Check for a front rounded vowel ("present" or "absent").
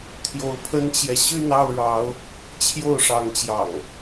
present